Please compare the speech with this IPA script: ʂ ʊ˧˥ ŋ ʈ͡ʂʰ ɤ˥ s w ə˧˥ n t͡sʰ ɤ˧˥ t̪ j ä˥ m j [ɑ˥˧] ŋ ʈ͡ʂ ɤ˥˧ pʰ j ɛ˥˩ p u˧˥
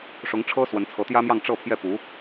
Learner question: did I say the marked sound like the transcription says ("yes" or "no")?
yes